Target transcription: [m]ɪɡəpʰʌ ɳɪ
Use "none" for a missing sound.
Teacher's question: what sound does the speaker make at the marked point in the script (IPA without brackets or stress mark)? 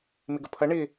m